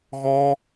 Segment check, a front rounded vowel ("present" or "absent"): absent